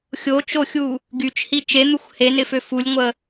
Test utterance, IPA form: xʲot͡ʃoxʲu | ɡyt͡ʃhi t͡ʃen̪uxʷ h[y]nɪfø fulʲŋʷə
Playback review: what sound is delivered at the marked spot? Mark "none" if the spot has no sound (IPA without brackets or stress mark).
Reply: e